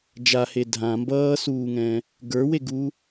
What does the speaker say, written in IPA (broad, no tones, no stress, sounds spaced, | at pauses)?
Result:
d͡ʒ a h e dʱ ã m b ʌː s uː ŋ ɛ̃ | ɡ ə˞ w e ɡ u